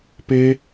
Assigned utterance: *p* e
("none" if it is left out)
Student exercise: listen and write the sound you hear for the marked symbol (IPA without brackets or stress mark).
p